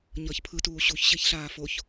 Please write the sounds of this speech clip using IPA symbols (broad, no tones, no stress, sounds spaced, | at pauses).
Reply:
ɲ ʌː ç pʰ ɯ t uː ɕ u ç ɕ e ç ɬ aː f o ç